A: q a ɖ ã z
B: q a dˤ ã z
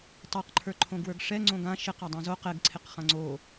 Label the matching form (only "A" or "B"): B